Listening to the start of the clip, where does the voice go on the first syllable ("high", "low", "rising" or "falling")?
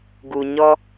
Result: low